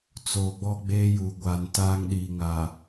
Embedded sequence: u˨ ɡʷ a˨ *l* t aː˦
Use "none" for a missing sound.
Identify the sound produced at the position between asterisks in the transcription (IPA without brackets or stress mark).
n